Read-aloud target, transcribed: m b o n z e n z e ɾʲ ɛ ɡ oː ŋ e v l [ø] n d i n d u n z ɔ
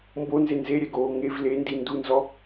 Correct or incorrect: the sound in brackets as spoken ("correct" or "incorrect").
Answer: incorrect